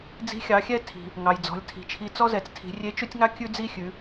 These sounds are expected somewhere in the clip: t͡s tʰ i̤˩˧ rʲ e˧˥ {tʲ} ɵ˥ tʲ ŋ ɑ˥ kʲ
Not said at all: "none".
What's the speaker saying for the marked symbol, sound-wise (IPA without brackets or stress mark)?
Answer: t͡ʃ